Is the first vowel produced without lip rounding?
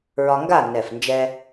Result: no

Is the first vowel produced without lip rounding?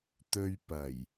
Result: no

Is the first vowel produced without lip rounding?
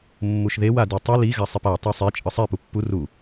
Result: no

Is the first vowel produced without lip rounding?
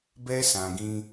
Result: yes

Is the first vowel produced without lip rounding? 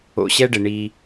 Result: no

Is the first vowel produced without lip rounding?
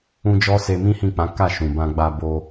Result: no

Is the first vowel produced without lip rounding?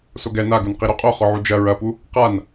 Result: no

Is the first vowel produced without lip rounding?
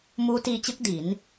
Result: no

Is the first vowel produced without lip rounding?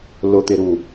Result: no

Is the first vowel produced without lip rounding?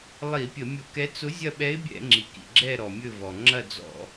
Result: yes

